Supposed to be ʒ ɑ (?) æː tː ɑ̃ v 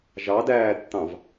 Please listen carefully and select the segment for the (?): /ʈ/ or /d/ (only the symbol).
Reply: d